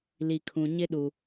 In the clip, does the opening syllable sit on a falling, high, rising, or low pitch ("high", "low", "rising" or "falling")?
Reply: low